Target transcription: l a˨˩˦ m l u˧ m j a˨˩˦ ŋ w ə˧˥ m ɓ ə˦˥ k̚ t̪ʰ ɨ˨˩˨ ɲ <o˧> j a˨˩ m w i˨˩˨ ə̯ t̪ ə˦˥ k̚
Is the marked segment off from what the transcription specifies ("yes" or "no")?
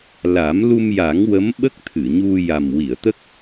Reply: yes